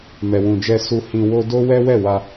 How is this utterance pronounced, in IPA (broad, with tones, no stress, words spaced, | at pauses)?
mɛ˨wũ˨d͡ʒɛ˧ su˧hĩ˧wo˦ do˦wɛ˦ wɛ˦˨wa˧